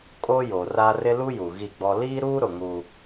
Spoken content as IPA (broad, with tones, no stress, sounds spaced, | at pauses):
kʼ o˦ j o˨ r a˦ r ɪ˦ l u˦ j u˨ ɣ i˦˨ ɡ͡b ɔ˦ l iː˦ ɾ uː˦ ɾ ʊ˨ ŋ u˦